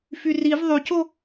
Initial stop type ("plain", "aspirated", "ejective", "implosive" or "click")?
plain